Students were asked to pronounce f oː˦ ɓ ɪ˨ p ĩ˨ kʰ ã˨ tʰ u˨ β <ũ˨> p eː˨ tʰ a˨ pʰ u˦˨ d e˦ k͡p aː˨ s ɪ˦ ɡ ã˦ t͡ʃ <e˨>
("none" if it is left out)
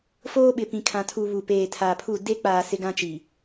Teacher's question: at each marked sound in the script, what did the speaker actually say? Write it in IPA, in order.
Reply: u˨, i˨

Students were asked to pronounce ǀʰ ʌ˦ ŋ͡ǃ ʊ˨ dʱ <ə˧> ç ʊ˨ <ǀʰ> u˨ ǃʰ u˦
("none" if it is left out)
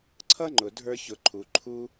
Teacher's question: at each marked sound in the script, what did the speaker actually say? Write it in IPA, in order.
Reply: ə˞˧, ǃʰ

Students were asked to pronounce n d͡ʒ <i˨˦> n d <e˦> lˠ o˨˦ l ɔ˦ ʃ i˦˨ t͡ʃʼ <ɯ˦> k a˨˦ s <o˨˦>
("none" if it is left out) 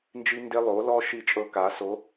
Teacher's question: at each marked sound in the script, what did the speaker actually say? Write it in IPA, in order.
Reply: i˦, e˦, ɤ˦, o˨˦

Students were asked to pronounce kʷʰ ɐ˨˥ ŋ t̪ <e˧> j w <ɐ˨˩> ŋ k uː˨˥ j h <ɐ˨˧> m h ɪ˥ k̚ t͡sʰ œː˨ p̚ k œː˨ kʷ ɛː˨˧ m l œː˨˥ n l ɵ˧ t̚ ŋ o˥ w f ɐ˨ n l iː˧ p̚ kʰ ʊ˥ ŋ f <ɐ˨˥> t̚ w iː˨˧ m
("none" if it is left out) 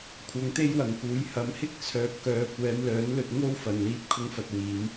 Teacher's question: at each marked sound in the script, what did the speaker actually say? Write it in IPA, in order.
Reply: e˥, ɐ˨˩, ɐ˨˧, ɐ˧

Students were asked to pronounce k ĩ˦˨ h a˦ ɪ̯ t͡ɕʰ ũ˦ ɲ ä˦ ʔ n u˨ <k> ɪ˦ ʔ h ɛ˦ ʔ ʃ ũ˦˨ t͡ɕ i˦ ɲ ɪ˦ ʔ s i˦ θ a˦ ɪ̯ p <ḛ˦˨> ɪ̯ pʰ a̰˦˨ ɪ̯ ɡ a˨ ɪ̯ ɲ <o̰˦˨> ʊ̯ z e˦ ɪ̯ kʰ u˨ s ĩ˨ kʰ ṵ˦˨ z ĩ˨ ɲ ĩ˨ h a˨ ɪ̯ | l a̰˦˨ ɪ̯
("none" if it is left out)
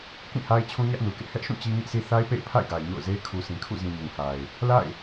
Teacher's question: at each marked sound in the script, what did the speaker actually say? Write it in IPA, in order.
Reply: k, ḛ˦˨, o̰˦˨

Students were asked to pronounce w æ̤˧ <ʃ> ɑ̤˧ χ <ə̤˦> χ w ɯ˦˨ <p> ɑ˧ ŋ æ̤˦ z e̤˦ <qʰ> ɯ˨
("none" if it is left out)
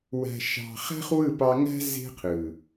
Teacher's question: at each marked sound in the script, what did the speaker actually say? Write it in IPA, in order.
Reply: ʃ, æ̤˦, p, qʰ

